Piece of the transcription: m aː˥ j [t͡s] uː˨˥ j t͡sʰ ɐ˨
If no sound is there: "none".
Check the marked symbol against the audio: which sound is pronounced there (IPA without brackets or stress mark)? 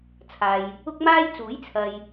t͡s